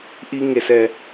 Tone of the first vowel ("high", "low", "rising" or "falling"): high